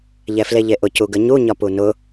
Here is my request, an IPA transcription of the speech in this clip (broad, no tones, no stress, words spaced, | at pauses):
ʎɛfleʎeʔʊ cuɡəɲu ɲɒpunʊ